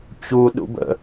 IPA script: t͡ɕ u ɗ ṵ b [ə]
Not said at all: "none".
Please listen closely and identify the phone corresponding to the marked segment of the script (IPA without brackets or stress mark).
ə̰